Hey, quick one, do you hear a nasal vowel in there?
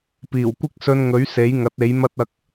no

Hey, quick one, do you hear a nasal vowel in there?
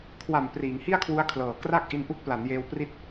no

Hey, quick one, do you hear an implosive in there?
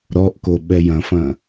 yes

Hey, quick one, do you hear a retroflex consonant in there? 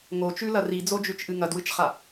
no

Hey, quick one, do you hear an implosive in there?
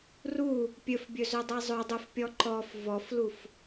no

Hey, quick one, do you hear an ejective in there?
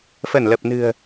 no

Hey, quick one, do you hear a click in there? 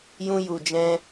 no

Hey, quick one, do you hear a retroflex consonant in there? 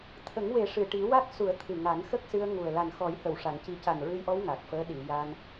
yes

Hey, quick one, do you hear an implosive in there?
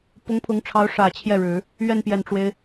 no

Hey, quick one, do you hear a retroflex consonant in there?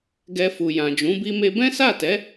no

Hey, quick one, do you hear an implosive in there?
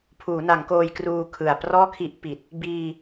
no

